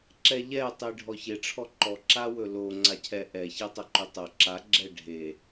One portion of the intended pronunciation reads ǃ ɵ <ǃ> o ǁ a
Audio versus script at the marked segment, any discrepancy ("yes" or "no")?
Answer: yes